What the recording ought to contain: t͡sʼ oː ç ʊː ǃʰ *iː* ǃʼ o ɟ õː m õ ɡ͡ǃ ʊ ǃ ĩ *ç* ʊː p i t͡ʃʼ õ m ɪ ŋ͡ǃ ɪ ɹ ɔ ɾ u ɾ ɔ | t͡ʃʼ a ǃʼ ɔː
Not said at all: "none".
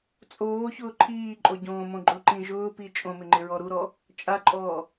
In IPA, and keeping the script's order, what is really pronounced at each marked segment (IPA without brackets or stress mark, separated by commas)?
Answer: iː, ʒ